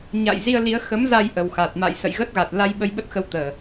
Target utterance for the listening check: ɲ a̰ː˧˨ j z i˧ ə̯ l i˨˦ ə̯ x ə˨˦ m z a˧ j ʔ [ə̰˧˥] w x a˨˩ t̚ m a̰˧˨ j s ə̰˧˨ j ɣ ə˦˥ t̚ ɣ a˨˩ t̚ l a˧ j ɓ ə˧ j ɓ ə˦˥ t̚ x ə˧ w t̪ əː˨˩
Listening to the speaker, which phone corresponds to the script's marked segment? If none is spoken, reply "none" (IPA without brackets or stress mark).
ə˨˩